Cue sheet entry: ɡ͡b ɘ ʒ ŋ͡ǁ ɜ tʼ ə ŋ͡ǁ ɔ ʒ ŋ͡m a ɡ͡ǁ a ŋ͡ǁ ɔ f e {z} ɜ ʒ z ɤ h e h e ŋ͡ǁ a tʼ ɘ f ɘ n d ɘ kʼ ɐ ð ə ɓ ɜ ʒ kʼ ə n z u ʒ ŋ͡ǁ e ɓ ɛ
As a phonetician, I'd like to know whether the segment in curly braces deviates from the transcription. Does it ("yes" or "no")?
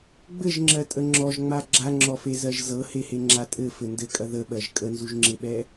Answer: no